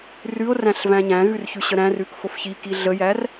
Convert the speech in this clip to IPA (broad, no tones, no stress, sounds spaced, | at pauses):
r ʉ o̯ r æ̃ ɬ v æ̃ ɲ æ̃ ɣ ʉ r ç ʉ ɕ ə ɾ æ̃ r ʉ k f o f ç i k i ɮ ə j æ r